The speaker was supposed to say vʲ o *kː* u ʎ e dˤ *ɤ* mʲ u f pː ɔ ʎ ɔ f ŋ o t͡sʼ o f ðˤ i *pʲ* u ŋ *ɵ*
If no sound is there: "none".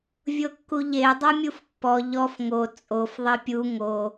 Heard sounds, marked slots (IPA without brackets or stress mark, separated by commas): kː, ɤ, pʲ, o